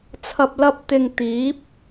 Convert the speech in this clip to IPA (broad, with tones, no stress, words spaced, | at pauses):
t͡sʰɐ˧p̚lɐ˥p̚ t̪ɪ˧ŋ t̪iː˨˥p̚